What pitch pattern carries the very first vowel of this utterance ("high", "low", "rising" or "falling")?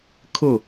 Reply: falling